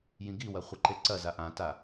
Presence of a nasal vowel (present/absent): present